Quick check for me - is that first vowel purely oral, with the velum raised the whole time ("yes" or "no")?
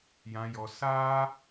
no